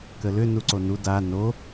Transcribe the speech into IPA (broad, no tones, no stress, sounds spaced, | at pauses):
k ə l ʏ n u ǀ o n u d a n o